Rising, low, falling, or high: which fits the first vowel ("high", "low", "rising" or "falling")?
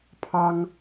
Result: high